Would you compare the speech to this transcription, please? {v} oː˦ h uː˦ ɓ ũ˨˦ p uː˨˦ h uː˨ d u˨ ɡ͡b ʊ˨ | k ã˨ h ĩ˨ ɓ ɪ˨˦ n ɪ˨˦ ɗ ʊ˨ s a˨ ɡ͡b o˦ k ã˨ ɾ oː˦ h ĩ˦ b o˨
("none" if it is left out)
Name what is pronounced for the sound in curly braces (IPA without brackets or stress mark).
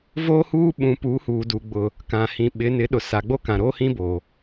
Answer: v